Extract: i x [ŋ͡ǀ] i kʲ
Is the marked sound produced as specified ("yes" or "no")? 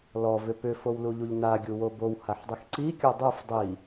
no